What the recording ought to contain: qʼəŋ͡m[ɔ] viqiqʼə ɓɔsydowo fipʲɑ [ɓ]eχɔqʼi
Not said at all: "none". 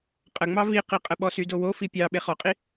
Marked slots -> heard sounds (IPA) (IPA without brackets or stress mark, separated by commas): ɑ, ɓ